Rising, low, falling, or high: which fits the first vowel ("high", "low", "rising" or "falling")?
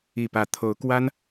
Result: falling